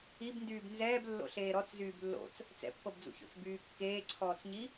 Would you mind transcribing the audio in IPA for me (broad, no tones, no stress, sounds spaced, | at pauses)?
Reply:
i b n d yː b n z ɛː b lː o̰ ɬ eː ɾ ɔ t͡s z yː b lː o̰ t͡s | t͡s ɛ̰ pː ɤ b d͡z ṵ ç o̰ t͡s b yː kː eː ǀʰ ɔː t͡s ɲ i